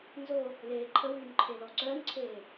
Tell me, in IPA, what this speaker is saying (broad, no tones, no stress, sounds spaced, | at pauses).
n z o | l eː ǃʰ ə w yː n ǃʰ e l ɔ ǀ œː n ǀʰ eː